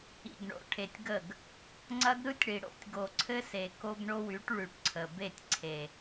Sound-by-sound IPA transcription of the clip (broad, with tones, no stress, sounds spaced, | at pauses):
ḭ˨ ɡ ɳ o̰˨ ʈʰ e˨ tʲ ɡ ə˦˨ ɡ | ŋ͡ǀ ɐ˦ ɡ ɾ ɯ˦ tʲ ɽ i˨ ɽ o̰˦ tʲ ɡ o˨ ǀʰ ɘ˦ s e˨ k o˦ ɡ ɳ o˦ w y˨˦ ʈ ɭ y˨ ʈ ǀʰ ə˨ b e˦˨ tʲ ǀʰ e˨